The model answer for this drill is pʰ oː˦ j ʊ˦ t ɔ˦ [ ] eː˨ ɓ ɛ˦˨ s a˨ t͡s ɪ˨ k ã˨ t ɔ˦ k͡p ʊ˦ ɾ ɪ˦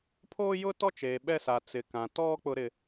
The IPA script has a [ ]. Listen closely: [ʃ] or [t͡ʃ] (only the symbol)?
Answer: t͡ʃ